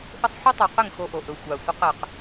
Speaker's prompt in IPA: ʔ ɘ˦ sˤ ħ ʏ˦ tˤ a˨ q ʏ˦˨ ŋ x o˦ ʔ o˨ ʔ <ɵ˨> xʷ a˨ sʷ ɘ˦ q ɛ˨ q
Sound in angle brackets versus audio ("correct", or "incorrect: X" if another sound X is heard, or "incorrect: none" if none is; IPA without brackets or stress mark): correct